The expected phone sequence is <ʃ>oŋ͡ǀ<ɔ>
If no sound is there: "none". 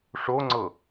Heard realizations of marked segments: ʂ, ɤ

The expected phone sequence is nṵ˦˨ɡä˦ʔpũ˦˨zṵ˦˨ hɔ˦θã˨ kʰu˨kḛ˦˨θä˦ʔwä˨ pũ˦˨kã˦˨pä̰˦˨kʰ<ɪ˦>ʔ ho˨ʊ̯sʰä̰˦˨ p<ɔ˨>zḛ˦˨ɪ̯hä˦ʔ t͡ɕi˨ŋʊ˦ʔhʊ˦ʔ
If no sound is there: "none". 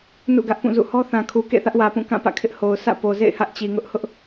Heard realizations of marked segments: ɪ˦, o˨

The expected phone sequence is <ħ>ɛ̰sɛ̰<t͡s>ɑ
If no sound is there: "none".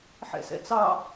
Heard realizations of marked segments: ħ, t͡s

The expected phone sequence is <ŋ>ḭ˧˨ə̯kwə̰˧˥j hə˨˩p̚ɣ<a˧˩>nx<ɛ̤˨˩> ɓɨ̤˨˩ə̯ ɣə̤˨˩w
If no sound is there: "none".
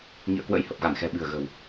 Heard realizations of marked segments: ŋ, a˧˩, ɛ̤˨˩

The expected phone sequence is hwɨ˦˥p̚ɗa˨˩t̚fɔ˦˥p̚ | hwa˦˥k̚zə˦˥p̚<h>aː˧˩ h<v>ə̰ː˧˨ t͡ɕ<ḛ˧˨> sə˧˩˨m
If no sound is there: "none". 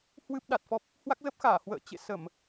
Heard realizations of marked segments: x, w, ḛ˧˨

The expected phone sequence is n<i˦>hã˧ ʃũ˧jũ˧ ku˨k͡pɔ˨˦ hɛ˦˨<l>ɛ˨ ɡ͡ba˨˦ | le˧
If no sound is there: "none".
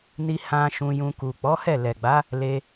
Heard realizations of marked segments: i˧, l

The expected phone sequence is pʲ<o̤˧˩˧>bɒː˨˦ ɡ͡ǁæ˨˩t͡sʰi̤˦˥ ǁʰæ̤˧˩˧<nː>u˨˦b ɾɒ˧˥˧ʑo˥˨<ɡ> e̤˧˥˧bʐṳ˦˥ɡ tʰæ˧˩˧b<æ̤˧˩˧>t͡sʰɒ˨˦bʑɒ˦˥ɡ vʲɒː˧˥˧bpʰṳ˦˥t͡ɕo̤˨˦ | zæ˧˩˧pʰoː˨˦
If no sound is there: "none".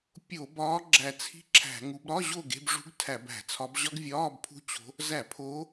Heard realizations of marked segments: o˧˩˧, ŋ, ɡ, æ̤˧˩˧

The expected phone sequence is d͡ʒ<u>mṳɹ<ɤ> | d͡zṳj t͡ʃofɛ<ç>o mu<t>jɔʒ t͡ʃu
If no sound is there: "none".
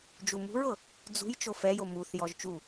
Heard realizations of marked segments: u, ɤ, j, θ

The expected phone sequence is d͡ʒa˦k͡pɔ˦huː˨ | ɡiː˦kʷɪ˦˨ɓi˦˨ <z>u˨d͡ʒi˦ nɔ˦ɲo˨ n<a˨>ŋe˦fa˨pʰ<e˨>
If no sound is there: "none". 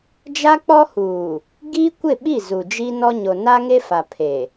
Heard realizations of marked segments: z, a˦, e˨

